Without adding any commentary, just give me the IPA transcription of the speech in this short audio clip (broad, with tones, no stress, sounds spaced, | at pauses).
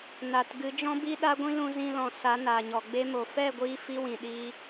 n a˨ t ɡ ɨ˨˦ d͡ʒ ɔ̃˦ b i˦ ɗ a˦ ɡʷ ĩ˦ l ũ˧ z ĩ˧ l ɔ̃˨ s a˨˦ n aː˨ ɲ ɔ˨ ɡ͡b e˦ m o˨ f ɛ˦˨ ɡʷ iː˧ f i˦ w ĩ˨ ɗ iː˧